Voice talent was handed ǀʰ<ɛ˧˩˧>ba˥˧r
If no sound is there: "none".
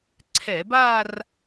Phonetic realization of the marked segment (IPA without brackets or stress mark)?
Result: ɛ˧˩˧